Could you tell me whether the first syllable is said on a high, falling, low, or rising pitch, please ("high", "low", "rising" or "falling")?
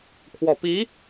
low